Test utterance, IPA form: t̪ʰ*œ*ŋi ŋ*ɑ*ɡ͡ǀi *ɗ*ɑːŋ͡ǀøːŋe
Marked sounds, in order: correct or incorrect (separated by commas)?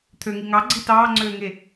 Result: incorrect, correct, incorrect